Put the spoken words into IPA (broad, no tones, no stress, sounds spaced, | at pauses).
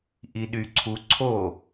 ʔ i ɗ y ǀʰ u ǀʰ o